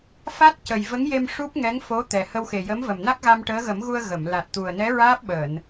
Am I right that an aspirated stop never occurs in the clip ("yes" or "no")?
yes